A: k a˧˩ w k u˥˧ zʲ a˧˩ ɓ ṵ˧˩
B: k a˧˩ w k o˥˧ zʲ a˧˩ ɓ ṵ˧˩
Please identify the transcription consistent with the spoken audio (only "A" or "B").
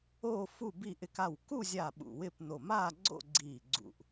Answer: A